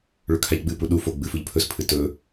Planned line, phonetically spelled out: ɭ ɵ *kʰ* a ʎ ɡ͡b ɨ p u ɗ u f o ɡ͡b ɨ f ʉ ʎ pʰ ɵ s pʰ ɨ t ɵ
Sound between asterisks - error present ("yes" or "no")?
no